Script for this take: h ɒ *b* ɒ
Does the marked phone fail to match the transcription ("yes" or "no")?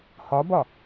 no